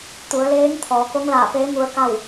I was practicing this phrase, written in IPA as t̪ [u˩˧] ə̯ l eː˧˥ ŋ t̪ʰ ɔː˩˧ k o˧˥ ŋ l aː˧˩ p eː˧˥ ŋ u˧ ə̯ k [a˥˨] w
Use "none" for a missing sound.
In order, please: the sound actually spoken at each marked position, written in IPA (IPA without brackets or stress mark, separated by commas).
u˩˧, a˥˨